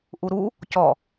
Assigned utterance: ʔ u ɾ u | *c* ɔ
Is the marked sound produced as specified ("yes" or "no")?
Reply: yes